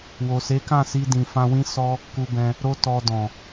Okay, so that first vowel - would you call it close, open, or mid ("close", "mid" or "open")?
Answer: mid